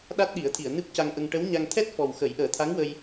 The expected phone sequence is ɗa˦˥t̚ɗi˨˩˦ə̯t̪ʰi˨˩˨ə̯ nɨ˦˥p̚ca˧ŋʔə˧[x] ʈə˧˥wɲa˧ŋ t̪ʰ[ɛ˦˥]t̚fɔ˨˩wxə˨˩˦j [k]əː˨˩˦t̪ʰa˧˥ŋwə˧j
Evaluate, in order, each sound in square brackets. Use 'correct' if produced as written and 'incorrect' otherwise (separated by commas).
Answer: incorrect, correct, incorrect